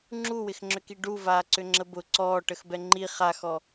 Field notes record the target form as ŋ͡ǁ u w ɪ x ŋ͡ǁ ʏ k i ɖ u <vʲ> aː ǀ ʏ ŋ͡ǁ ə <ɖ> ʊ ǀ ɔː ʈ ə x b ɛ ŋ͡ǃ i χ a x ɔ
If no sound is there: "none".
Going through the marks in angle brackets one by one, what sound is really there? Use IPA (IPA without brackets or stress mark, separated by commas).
v, b